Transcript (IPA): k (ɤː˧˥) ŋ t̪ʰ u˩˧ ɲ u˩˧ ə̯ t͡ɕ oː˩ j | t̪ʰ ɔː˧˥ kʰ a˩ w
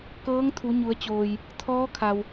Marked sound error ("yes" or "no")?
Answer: no